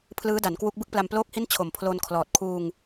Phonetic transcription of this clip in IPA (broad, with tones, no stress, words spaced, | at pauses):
pʰlɯː˦˥da˩˦nkwu˦˥k̚ bɯ˥˩k̚pla˧mploː˥˩k̚hi˥˩n t͡ɕʰo˨˩mpʰloː˧nkʰlɔː˨˩t̚ kʰuː˧ŋ